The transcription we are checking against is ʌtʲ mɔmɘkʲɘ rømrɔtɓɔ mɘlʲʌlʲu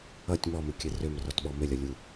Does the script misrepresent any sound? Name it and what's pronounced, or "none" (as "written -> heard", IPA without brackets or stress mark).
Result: none